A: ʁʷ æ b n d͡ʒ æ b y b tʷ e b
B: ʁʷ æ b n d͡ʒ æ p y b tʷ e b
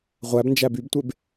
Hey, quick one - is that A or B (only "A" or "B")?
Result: A